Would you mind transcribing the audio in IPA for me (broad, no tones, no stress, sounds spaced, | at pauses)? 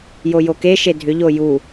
j o j o k e ʃ e dʱ ʏ ʎ o j u